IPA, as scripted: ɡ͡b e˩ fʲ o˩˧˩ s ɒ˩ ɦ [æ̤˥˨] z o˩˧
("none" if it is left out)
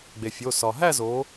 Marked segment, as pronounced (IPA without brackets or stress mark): æ˥˨